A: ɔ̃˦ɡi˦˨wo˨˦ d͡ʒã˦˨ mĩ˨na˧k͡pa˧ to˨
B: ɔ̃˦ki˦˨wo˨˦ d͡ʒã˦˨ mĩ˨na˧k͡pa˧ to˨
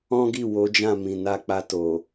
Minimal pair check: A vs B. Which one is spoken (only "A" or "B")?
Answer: A